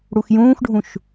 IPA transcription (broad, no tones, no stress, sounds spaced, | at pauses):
ɽ u x j ũː x ɖʱ ũ ʃ